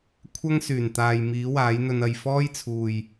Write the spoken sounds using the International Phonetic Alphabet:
kʷʰ ɐ˥ ŋ s yː˨˩ n t̪ aː˨ j m iː˨˥ w aː˨˥ j n̪ ɵ˧ n ɐ˧ j f ɔː˥ j t͡sʰ uː˨ j

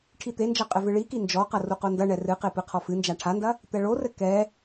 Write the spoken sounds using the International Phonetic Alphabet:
ʈʰ i t̪ e n d͡ʒ ɐ qʼ ɘ v ɨ ɭ i k i n d͡ʒ ɔ q ɐ r u q o n d ɐ ɳ ɛ r ɨ q e p ɨ qʰ ɔ f ɨ n d͡ʒ a ʈʰ a n d ɐ | t̪ ɛ ɭ o r ɘ k ɛ

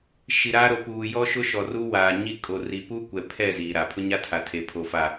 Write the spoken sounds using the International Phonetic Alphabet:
ʃ i˨ ɾ aː˦ ɾ o˨ p uː˨ j ɔ˦ ʃ ʊ˦ ʃ ɔ˨ r u˦ w aː˨ ɲ i˦ kʼ o˨ r i˨ p u˦ kʷ ɛ˨ pʰ ɛ˦˨ z iː˨ ɾ a˨ pʰ ʊ˦ ɲ a˦ tʰ a˨ tʰ e˨ pʰ o˨ f a˨

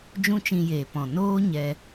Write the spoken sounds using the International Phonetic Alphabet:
d͡ʒ ũ˦ t͡ʃ ĩ˧ j eː˨ p ɔ̃˨ n oː˦ ɲ ɛ˧

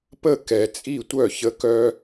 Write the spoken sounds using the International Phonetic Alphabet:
p ə˥˨ k ɛ˦ t͡sʼ i˥˨ tʷ œ˥˨ ç ə˦ k œ˦

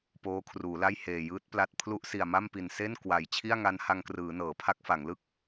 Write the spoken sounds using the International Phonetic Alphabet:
p oː˦˥ kʰ r uː˩˦ l a˥˩ j h eː˨˩ j ɯː˦˥ t̚ p l a˦˥ t̚ pʰ l u˦˥ ʔ s i˨˩ a̯ m a˥˩ m p i˨˩ n s e˥˩ n k w a˨˩ j t͡ɕʰ i˥˩ a̯ ŋ a˦˥ n h a˧ ŋ k r ɯː˩˦ n ɤː˩˦ pʰ a˦˥ k̚ f a˩˦ ŋ l ɯ˥˩ k̚

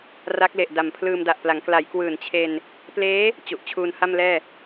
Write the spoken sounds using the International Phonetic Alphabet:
r a˦˥ k̚ l e˨˩ ʔ d a˨˩ m pʰ l ɯː˧ m d a˨˩ ʔ p l a˩˦ ŋ k l a˩˦ j k w ɯː˨˩ n t͡ɕʰ e˧ n | p l eː˦˥ | t͡ɕ u˨˩ ʔ t͡ɕʰ uː˧ n h a˥˩ m l ɛː˥˩

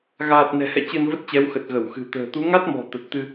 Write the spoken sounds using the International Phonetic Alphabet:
ɣ aː˨˩ t̚ n ɛ̤˨˩ h ɛ̰˧˨ t͡ɕ ɨ˧ n v ə˦˥ t̚ t͡ɕ ɛ˨˦ w x ə˨˩ t̚ ɣ ə˧˩ w x ɨ̤˨˩ t̪ ə̤ː˨˩ t̪ u˨˦ ŋ a˦˥ t̚ m ɔ̤˨˩ t̪ ə˨˩ t̚ t̪ ɨ˧

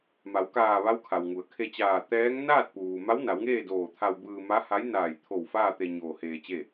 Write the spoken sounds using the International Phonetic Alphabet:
m a˩˧ w k aː˧˩ ʋ a˧˥ w kʰ a˩ w ŋ u˩˧ ə̯ kʰ e˧ t͡ɕ aː˧˩ t̪ ɛː˧˥ ŋ n aː˥˨ t̚ p uː˩ m a˧˥ w n a˩˧ w ŋ eː˥˨ d oː˧˩ t̪ʰ a˧ w b ɯː˧ m a˧˥ h a˧˥ j n aː˧˩ j t̪ʰ o˧˩ w f aː˥˨ t̪ e˧ ɲ oː˧ h eː˧ t͡ɕ e˥˨

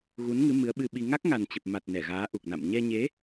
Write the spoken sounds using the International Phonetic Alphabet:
ɣ u˨˦ n ŋ ɨ˨˦ m ɨ˨˦ ə̯ ɓ ɨ˧ ɓ i˧ ŋ a˦˥ k̚ ŋ a˨˩ n t͡ɕ ə˨˩ p̚ m a˨˩ t̚ n ɛ˧˩ ɣ aː˨˦ ʔ u˨˩ k̚ n a̰˧˨ m ɲ ɛ˧ ɲ e˨˦

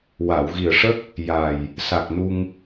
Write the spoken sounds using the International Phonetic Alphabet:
w a˨˩˨ w ɣ i˨˩ ə̯ ʂ ə˦˥ k̚ | j a˨˩ j | s a˨˩ k̚ n u˧ ŋ

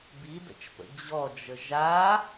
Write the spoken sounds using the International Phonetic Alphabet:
b i d ə̰ t͡ʃ p ə̰ d͡ʑ ɔ d͡ʒ ə ʒ a

